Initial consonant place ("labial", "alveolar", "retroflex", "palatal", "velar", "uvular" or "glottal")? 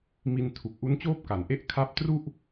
labial